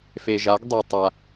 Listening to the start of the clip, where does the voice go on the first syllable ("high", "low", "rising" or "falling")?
low